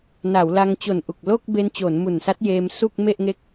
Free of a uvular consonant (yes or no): yes